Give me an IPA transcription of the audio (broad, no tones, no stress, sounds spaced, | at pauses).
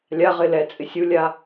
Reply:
lʲ a ʁ ɪ l ɛ t͡sʼ ɪ sʲ u lʲ a